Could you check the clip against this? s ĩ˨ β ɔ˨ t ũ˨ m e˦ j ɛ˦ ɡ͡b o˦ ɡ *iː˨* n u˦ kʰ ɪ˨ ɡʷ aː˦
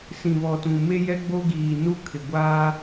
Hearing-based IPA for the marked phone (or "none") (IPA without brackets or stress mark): iː˨